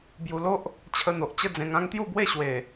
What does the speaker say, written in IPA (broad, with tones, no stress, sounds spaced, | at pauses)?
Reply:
b j u˧ l o˦ ʔ | t͡ɕʰ ə˧ n̪ o˨ ʔ t͡ɕ ə˥˧ d͡z ẽ˧ ŋ ã˦ ŋ t̪ j u˥˧ b w e˥˧ ɕ w e˨˩